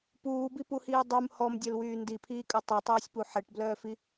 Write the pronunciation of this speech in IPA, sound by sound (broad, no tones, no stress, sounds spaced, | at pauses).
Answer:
p uː b i p u h iː dˤ u m h ɔ m dʲ œ l w yː n d i pʰ iː kʼ œ tˤ ɛ tˤ œː sʲ p u ħ ɛ ʈ b l œː f i